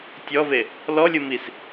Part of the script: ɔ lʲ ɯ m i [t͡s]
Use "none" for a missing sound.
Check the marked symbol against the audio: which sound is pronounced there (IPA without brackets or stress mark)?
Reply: s